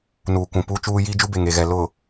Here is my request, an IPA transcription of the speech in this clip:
n uː˨ kʷ ũ˨ p uː˦ t͡ʃ uː˦ j iː˦ d͡ʒ u˦ b e˨ ŋ e˨ ɣ ɛ˨ l ʊ˨

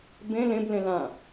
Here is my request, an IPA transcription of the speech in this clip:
b ẽ l ẽ b l ẽ l ã

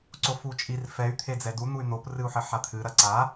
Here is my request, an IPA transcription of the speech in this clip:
ǀ o f u t͡ʃʼ i r f ɛ y̯ t̪ʰ e d͡z ɛ d u n̪ u y̯ n̪ o p r ɨ u̯ ħ ɘ ħ a t̪ʰ ɨ ɾ ɐ ǀ a

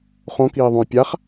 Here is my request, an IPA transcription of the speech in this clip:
χ õ k iː ðˤ ũ j pʲ a χ

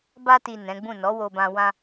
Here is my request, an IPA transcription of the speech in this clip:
b a˧ t i˨ n ɛ̃˨˦ ɡ͡b ũ˦˨ n ɔ˨˦ w o˧ b ã˧ w ã˧

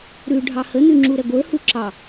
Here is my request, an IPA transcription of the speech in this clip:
ɾ ʉ ɖʱ ɑ h ə n ʉ ŋ͡ǁ u ɾ ɛ ɡʷ ə˞ h u ǁ ɑ

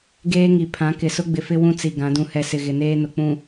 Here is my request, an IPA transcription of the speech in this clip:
ɡ eː˦ ŋ i˨ pʰ ã˨˦ k ɪ˨ s ʊ˦ ɡ͡b ɪ˨ f ɪ˦ w ũ˦ t͡s i˨ ɡ ã˨˦ d ũ˨ h ɛ˨ s ɪ˨ ɣ ɪ˨ n eː˦ n ʊ˨ k͡p ũ˨

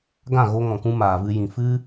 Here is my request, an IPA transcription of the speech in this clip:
ɡ ã˦˨ ɣ o˧ ŋ ɔ̃˨ k ũ˧ m aː˨ v ɨ˧ j ĩ˨ f ɨ˦

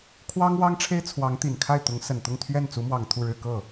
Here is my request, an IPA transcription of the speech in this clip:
kʰ w ɑ˥ ŋ w ɑ˥ ŋ ʈ͡ʂʰ e˥ ɪ̯ t͡sʰ w ɑ˧˥ ŋ t̪ i˨˩ n kʰ a˥˩ ɪ̯ t̪ ʊ˧˥ ŋ s ə˨˩ n t̪ ʊ˥˧ ŋ t̪ʰ ɥ ɛ˥˩ n t͡s u˧˥ m w ɑ˨˩ ŋ t̪ʰ u˥˧ ɻ ɻ̩˥˧ k ɤ˥˩

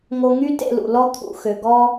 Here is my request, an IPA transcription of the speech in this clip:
ŋ o˧ ŋ y˦ t ḛ˧ l ṵ˨ l ɔ˧ t̪ʰ ṵ˨ x ø˨ ɡ ɔ˦

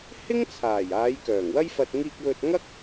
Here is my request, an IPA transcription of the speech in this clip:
h ɪ˥ ŋ t͡sʰ aː˨˩ j aː˨˧ j k œː˨˩ ŋ w ɐ˥ j f ɐ˧ t̚ ŋ iː˧ k̚ w ɵ˧ t̚ ŋ ɐ˥ k̚

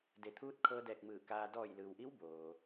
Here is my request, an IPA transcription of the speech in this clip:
d e˩˧ t̪ʰ uː˧˥ t̚ kʰ ɤː˧ d ɛː˧˩ k̚ m ɯː˧˩ k aː˧ d ɔː˧˩ j l ɯː˩ w ʔ i˧˥ w b oː˩

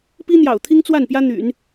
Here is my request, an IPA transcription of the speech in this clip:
p i˥ n̪ j ɑ̰˨˩ ʊ̯ t̪ʰ i˥ ŋ t͡s w a˥˩ n p j ä˥ n̪ y̰˨˩˦ n

